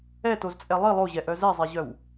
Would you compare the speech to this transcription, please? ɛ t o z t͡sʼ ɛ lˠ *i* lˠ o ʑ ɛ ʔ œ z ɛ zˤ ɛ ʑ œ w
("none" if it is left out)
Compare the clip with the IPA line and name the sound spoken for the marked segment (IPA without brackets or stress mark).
i